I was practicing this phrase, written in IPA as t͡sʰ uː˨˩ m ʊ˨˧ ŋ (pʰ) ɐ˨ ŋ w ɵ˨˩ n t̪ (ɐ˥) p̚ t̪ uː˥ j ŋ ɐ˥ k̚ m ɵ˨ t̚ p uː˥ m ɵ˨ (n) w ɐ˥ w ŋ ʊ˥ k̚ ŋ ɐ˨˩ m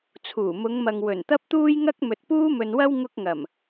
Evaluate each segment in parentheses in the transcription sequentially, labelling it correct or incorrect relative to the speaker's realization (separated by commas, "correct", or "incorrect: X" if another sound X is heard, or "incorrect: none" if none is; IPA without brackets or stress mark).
incorrect: m, correct, correct